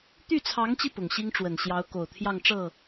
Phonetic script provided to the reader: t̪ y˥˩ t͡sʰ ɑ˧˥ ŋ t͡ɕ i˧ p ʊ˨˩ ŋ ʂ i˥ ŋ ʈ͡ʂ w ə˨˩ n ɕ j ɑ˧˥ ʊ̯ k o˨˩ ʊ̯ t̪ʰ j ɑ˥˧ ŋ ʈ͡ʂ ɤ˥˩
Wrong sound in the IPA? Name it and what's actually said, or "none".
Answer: ʂ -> ɕ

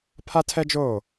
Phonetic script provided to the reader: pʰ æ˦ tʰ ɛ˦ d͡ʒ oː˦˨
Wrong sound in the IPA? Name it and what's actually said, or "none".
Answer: æ˦ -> a˦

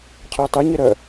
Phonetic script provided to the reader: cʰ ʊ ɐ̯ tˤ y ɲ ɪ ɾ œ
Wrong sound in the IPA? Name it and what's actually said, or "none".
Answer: none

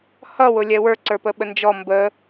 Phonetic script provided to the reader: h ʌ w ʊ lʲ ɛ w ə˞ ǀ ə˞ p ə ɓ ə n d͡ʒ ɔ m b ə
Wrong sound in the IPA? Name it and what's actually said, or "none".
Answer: none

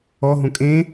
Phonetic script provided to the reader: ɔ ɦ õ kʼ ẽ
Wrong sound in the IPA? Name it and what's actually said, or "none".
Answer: none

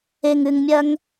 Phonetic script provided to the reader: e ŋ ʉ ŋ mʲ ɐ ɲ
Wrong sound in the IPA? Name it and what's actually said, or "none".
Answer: ɲ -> ŋ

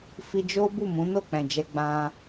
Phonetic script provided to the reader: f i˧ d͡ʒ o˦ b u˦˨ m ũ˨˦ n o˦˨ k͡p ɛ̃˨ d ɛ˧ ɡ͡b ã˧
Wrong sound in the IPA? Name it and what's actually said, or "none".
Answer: d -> d͡ʒ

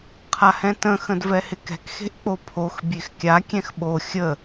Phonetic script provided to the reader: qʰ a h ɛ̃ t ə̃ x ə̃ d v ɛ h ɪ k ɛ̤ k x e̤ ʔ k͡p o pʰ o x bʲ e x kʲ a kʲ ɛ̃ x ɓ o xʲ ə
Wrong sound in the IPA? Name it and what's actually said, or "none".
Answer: none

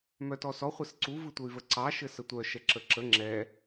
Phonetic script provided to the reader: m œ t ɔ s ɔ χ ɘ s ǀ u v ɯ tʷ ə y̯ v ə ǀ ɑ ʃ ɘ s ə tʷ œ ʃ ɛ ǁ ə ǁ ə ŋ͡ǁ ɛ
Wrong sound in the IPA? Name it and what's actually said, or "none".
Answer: χ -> χʷ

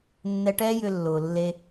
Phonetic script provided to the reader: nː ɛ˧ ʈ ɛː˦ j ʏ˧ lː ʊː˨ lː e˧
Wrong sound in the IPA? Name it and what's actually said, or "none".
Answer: none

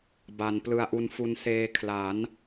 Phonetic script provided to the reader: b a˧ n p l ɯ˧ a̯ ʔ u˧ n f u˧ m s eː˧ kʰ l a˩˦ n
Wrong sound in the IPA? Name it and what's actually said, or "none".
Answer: m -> n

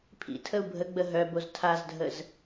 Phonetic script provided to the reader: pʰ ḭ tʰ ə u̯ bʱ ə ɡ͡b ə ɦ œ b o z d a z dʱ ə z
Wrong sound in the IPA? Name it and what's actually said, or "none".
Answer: d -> tʰ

